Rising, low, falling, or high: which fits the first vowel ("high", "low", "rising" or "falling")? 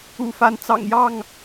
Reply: low